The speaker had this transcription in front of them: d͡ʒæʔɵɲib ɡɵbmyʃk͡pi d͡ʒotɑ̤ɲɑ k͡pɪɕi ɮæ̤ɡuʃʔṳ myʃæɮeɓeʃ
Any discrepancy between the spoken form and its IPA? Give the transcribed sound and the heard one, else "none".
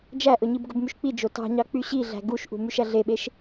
ɪ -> y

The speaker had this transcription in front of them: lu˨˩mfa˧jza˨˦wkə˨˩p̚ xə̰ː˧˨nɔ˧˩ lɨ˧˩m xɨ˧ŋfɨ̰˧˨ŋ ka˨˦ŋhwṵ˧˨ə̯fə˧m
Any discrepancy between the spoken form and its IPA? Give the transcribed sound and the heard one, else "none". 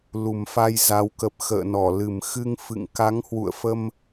none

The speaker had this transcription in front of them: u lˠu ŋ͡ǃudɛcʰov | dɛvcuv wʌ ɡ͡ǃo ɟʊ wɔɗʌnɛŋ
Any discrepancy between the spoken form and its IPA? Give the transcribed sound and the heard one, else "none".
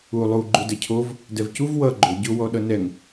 ŋ͡ǃ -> ɡ͡ǃ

